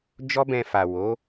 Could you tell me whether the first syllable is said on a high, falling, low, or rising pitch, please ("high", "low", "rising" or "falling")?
high